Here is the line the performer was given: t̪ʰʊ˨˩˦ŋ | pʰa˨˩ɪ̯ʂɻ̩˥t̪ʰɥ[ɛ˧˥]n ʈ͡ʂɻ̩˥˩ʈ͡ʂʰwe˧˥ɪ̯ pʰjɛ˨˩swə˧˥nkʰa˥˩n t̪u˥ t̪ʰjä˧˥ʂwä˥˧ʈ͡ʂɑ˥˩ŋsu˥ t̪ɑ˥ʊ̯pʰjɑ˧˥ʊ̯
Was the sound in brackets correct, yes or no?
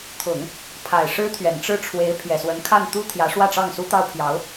no